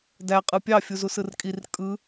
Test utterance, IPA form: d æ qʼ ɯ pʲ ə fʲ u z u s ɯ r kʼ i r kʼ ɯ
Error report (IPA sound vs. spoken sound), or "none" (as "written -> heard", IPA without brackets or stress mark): ə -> ɑ